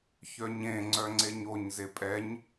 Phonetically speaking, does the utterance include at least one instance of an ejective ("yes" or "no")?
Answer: yes